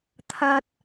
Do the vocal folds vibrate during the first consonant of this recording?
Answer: no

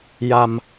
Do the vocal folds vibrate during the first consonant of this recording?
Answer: yes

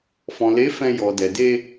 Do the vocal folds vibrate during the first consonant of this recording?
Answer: no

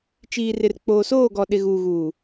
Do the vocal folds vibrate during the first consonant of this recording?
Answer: no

